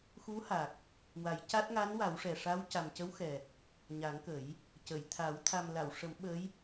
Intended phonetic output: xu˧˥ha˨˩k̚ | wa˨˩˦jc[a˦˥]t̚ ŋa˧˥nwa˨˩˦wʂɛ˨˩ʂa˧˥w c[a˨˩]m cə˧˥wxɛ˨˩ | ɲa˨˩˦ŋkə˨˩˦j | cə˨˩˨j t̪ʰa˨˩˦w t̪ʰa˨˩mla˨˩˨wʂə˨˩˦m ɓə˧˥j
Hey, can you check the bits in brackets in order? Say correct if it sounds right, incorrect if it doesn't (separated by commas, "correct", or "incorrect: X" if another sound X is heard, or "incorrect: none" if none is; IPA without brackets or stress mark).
correct, correct